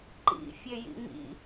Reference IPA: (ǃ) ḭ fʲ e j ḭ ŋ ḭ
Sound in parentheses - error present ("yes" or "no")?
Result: no